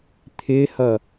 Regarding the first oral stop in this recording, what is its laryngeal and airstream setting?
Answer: aspirated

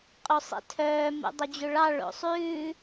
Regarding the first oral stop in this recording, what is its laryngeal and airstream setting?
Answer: ejective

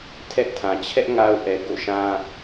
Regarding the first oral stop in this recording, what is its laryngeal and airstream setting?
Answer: aspirated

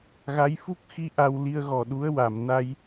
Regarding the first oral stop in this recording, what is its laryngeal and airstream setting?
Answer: plain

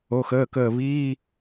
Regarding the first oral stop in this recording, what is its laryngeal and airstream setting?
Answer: plain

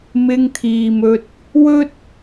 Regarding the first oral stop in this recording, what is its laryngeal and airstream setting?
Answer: aspirated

